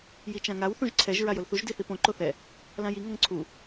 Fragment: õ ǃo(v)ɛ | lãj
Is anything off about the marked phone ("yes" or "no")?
yes